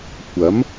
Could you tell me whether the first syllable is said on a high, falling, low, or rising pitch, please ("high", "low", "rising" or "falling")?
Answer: rising